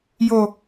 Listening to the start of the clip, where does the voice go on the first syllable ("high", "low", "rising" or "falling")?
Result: low